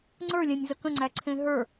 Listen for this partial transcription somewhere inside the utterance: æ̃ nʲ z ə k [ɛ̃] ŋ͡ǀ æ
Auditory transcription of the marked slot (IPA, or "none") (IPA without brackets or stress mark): ə̃